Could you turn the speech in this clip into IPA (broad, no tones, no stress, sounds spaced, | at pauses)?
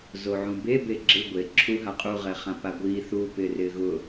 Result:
z o ʕ ũ b e b e ɡ͡ǁ ɪ ɡʷ e ǁʰ u ɦ a qʼ u ʁ ɛ χ ã p a ɡʷ i θ uː p ɪː r ɪː ɣ ʊ